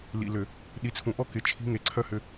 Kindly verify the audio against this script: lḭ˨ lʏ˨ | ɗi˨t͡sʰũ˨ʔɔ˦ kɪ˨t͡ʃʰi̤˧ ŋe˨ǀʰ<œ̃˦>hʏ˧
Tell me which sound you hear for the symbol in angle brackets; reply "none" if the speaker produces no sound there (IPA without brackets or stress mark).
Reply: œ˦